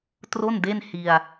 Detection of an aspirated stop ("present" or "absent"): absent